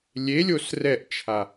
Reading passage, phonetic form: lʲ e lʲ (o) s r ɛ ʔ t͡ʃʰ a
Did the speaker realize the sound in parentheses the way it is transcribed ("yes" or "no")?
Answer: yes